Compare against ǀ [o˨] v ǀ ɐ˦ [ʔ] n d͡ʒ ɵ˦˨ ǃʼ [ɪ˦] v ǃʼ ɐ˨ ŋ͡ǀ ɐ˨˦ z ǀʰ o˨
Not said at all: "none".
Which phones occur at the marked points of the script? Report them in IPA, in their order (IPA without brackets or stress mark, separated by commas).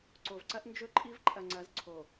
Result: o˨, ʔ, i˦